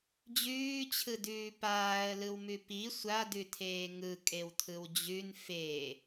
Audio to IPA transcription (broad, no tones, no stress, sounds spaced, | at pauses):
d͡ʑ ʉː t͡ɕʰ ɯ d ʉː p aː ə̯ l ɯ w m ʉ p i sʷ a d ʉ tʰ eː ŋ ɯ kʼ e w tʰ ɯ w d͡ʑ ʉ n f e